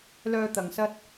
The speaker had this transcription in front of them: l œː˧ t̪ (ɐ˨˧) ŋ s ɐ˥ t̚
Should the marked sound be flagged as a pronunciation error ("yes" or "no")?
no